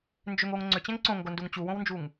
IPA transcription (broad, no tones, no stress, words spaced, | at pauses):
nd͡ʒʏŋ oŋ ŋ͡ǀʏt͡ɕɛ̃ŋ ǀõŋɡonduŋ t͡ɕuwõwnd͡ʒuŋ